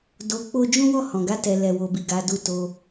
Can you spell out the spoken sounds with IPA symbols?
do˧k͡po˦ d͡ʒũ˦wɔ˦˨ hɔ̃˨ɡa˧tɛ˨ lɛ˨wo˨bi˨ ɡa˨˦du˦˨ to˧

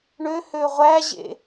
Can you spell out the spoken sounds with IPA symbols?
ɳø høʁʷæʑḛ

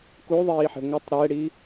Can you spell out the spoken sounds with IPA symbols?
kuðˤiːħe̤ ŋʷɘtˤ ɾɛɽi

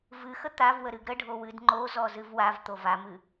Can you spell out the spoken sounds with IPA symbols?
vɨxə t̪avwə ɾɨɡɾəɖʱo wɨdŋ͡ǃozɔ zɨvwavt̪o vamɨ

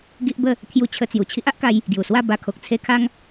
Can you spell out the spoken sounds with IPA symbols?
ɡi˦ʔbə˥˧ | t̪ʰju˧t͡ɕʰə˧t͡sju˨˩ t͡ɕʰi˦ʔa˦ʔka˧j | ɡju˨˩swa˥˧ ba˧kʰo˨k̚t͡sʰe˦kʰa˦ŋ

